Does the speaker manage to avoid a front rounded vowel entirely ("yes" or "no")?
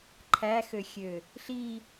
no